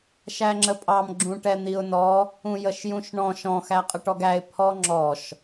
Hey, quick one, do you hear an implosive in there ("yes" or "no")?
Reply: no